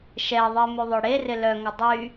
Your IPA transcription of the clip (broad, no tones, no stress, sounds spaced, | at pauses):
ʃ ɛ ðˤ e m y ðˤ œ ɽ e r ɪ l œ ŋ ə dˤ y